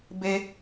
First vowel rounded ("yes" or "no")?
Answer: no